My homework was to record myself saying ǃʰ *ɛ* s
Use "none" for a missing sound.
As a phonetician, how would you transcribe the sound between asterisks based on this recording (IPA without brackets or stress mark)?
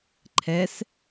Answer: ɛ